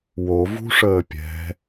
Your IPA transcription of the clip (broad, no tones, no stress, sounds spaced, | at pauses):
w o v ṳ ʂ əː pʲ ɛ̤